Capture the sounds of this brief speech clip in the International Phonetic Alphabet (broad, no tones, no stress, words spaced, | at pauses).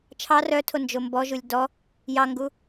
t͡ʃʰɑ rœtʰo nd͡ʒombɔʒulʲ dɔ | jɑŋɡu